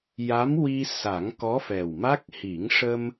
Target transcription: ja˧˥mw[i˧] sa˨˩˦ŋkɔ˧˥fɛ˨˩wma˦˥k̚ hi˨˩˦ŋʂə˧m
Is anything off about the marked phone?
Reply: no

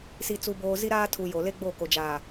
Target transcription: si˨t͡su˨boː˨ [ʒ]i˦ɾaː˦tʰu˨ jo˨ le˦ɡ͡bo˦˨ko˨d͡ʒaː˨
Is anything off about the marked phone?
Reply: yes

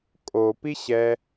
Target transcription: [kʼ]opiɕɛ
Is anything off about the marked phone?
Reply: no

